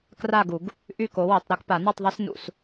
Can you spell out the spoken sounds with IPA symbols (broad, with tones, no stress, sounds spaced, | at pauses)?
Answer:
k r a˥˨ ɡ u˨˩˦ ɡ | ʔ y˥˨ k o˨˥ w e˨˩˦ tˤ ɾ ɛ˦ k p a˨˩˦ n ɔ˥˨ tˤ ðˤ ɛ˦ s n ṵ˨˩˦ s